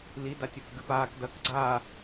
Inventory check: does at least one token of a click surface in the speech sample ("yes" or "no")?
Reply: yes